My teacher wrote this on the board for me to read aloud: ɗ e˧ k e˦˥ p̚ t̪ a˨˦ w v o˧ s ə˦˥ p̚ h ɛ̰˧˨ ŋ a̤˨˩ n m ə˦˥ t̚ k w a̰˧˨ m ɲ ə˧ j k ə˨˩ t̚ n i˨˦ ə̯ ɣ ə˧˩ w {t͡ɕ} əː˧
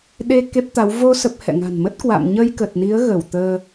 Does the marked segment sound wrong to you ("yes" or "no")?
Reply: yes